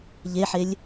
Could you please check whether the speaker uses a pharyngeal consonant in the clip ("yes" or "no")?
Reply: yes